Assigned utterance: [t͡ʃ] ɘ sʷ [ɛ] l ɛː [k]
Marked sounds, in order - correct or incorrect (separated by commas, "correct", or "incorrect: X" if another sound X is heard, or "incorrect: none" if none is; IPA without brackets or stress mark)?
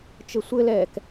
correct, incorrect: ɘ, correct